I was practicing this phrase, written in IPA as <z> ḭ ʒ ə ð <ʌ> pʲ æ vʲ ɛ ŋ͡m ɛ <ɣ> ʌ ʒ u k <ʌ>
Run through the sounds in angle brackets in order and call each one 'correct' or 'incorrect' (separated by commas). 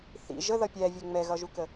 incorrect, correct, correct, incorrect